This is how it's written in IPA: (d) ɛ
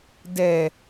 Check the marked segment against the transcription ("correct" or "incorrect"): correct